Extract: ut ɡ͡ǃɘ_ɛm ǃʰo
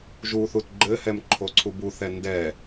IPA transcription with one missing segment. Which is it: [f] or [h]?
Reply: h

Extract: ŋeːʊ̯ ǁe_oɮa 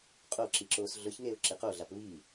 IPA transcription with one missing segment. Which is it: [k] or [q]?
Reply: q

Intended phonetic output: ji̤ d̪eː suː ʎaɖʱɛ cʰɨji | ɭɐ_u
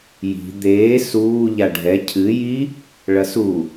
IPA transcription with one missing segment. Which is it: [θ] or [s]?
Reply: s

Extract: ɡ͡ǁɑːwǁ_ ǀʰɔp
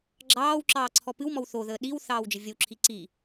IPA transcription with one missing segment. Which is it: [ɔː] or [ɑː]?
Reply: ɑː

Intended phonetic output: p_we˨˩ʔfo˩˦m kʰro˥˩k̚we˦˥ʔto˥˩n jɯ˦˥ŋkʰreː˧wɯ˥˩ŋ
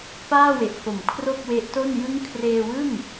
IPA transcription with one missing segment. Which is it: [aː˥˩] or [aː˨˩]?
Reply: aː˥˩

